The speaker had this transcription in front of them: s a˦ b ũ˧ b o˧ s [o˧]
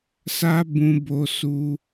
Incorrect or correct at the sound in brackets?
incorrect: u˧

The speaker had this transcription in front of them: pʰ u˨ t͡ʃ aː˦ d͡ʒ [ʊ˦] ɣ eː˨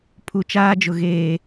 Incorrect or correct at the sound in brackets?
incorrect: ʊ˨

